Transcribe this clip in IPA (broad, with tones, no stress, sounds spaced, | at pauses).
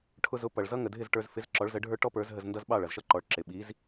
ʈʰ ʊ˧ z ʊ˩˥ p ʌ˩ ɭ z ʌ˥ ŋ ə˩ dʱ ɪ˥˩ z ʈ ə˞˧ z f ɪ˩˥ z ǁ ɔ˩˥ ɭ z ə˩˥ ɖʱ ə˞˥ ʈ ɔ˥ p ə˞˩˥ z ɦ ə˧ z n d ʌ˥ z ɓ ɑ˥˩ ɭ ʌ˩ z ʃ ʌ˥ ǃ ɔ˩˥ ɭ ǁ ɪ˩ ɓ i˩˥ z